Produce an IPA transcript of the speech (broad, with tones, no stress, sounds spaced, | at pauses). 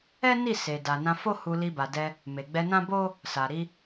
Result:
ɛ˦ n i˦˨ s e˨ d a˨ n ã˧ f o˦ h u˧ l i˧ b a˨ d ɛ˧ | m e˨ ɡ͡b ɛ˧ n ã˦ b o˦ | s a˨ ɾ i˧